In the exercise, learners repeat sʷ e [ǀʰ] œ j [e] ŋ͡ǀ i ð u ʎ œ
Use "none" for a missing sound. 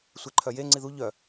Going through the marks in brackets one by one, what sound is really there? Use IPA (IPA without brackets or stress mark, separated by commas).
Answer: ǃʰ, e